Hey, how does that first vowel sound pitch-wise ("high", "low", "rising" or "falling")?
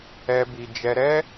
high